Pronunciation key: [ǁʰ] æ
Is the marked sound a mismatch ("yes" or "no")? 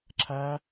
no